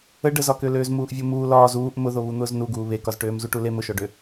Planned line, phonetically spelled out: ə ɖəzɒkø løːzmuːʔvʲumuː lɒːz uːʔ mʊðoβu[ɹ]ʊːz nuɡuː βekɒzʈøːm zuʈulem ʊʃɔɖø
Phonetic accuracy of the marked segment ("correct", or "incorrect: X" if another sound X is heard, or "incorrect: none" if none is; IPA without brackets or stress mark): incorrect: n̪